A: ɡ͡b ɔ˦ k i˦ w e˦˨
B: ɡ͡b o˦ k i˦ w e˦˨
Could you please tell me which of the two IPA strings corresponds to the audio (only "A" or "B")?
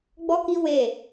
A